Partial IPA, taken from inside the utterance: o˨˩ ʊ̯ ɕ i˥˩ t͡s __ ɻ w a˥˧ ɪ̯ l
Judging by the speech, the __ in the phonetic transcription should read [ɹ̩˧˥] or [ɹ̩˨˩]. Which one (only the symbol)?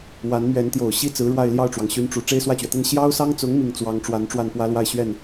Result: ɹ̩˧˥